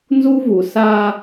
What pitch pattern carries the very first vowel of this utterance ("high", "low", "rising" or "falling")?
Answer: high